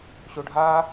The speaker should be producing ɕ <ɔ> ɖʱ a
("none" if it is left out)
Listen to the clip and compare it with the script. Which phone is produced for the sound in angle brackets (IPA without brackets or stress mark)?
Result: o